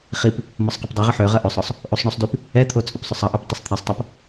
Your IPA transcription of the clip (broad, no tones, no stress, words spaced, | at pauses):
χip | mɔsˤqɐpdˤiʁə ħøʁɐ ʔøsˤɔsˤ | ʔusˤɳusˤdyp | ɛt̪ʰo t͡sʼʏpsˤʏsˤɐʔøp tˤəsˤt̪ʰisˤtˤap